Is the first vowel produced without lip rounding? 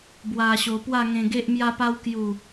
yes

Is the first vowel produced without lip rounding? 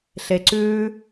yes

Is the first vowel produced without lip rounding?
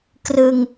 yes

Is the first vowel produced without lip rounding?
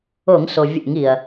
no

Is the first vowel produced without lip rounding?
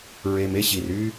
yes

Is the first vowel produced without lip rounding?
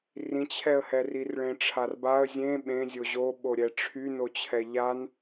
yes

